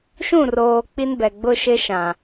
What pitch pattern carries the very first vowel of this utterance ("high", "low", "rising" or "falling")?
falling